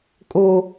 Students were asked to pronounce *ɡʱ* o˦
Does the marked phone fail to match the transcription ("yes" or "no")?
yes